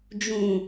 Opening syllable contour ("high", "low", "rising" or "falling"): low